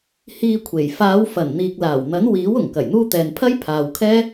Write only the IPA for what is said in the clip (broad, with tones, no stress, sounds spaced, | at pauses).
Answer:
h iː˧ kʷʰ e˨˩ j f aː˨˧ w f ɐ˨˩ n n̪ iː˨ k̚ l aː˨˩ w n̪ ɐ˨˥ n w iː˨˥ w ʊ˨˩ ŋ k ɐ˨˩ j n̪ uː˧ t̪ ɛː˨ n pʰ ɐ˥ j pʰ aː˨ w kʰ ɛː˥